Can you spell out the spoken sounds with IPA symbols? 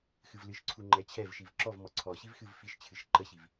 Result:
xɨvlɨʃǀʰu ŋ͡ǃɛt͡ɕʰɛvʃiv ǁɔv mɔǀʰɔɕiv xɨvfiʃt͡ɕʰɨʃ ǃəɕiv

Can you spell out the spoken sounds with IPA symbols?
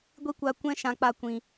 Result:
ɡʷi˦kʷa˧kʷɛ̃˦ ʃã˧k͡pa˧kʷĩ˨

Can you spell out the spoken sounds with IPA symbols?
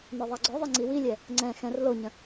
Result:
nɔðˤaɡ͡ǀœðˤi ŋ͡ǀiwilʲɛ | ŋ͡ǀɛ̃ xɛ̃r loɲə̃

